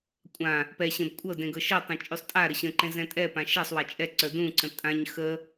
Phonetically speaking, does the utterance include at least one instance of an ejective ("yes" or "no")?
yes